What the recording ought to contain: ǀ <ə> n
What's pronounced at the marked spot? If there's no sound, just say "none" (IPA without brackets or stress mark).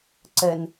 ə